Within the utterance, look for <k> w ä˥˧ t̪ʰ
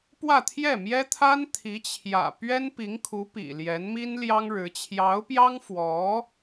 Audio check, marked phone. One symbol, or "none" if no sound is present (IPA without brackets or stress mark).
p